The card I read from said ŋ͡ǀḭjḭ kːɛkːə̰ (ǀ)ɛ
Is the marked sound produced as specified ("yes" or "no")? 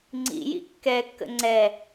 no